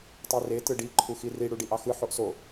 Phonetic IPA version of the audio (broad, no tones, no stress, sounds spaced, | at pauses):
tˤ i r e t ɯ ɖ i ǃʰ u x i r i ɽ u ɖ i ʔ ɑ x ɯ ħ o ʔ s o